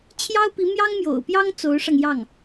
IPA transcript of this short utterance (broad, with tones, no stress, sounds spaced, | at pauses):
t͡ɕʰ j ɑ˥ ʊ̯ p i˧˥ m j ɑ˥ ŋ m j o̰˨˩ ʊ̯ p j ɑ˥ ŋ t͡s o˧˥ ʊ̯ ʂ ɑ˧ ŋ j ɑ˥˩ ŋ